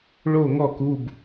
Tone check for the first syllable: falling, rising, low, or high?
falling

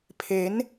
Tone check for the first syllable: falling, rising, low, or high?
rising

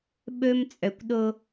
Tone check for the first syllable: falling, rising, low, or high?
high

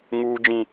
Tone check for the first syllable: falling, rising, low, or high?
high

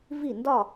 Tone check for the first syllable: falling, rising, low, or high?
falling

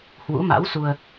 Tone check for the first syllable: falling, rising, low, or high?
rising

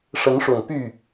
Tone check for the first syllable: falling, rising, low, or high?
rising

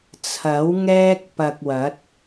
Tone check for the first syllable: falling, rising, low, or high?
rising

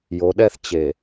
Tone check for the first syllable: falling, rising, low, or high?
rising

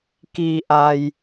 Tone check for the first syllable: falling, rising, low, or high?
low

